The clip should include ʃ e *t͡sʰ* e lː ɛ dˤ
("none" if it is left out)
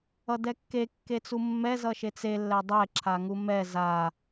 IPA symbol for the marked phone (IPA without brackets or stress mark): t͡s